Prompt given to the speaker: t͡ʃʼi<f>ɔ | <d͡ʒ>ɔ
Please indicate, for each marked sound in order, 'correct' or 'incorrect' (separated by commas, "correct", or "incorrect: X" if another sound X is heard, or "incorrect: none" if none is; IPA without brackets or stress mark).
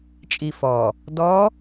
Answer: correct, incorrect: d